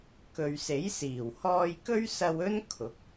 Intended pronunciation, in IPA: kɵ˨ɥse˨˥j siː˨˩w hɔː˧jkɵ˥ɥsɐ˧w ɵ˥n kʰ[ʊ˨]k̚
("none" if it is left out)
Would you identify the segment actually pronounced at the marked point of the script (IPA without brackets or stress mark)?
ʊ˨˥